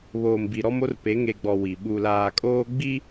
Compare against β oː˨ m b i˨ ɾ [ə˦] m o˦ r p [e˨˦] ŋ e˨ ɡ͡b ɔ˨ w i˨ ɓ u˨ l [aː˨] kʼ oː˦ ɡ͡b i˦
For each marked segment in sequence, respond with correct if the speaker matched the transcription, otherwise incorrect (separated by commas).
incorrect, correct, correct